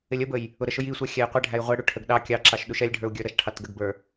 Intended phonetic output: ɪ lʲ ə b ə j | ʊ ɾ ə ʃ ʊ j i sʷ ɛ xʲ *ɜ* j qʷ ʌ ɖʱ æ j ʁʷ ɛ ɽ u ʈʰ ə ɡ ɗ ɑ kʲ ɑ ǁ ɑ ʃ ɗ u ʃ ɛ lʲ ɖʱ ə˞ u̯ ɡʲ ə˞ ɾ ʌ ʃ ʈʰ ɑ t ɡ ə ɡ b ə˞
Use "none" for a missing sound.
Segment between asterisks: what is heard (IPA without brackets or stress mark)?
æ